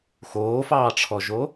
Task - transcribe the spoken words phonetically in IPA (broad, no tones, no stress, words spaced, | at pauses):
xoːfɑːʈ͡ʂʰɔʒo